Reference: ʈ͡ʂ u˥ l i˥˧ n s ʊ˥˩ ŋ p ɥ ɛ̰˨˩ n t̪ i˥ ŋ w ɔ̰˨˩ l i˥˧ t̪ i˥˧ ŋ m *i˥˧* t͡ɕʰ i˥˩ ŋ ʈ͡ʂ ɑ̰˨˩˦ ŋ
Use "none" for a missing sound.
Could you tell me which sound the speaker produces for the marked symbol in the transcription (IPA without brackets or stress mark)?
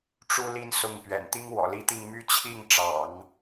y˥˧